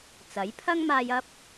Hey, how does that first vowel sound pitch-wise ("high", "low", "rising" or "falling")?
rising